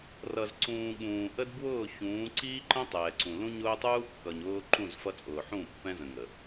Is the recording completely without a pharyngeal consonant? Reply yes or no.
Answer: no